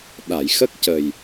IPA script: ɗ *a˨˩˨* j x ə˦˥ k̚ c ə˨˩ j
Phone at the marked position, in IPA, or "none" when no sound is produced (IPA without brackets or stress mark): a˨˩˨